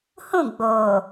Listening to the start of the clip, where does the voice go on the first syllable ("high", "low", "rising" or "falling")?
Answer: falling